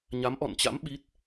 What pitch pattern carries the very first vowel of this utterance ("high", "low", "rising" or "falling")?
rising